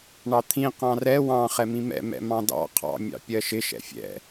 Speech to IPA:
ɳ ɑ t̪ʰ ĩ q ɑ̃ r ɛ w ɑ̃ χ ɛ m ĩ m ɛ̰ m ɛ̰ m ɑ̃ d ɑ̰ qʰ ɑ̰ mʲ ɑ̰ pʲ ɜ ʃ ɪ ʃ ɛ̰ fʲ ɛ̰

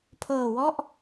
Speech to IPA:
pʰ ɤː˨˩ w ɔ˥˩ ʔ

